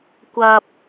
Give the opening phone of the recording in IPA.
kʷ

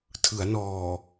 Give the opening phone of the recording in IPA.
tʰ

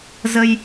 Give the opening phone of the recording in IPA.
z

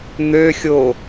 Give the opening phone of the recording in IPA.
n̪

